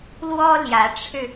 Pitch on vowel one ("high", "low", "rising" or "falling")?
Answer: high